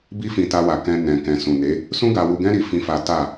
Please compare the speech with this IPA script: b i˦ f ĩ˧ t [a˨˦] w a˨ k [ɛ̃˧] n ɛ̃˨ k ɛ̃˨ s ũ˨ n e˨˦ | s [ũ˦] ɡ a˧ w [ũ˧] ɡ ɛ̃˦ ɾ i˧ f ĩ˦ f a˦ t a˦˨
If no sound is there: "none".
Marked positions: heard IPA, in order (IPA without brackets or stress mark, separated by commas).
a˧, ɛ̃˧, ũ˦, u˧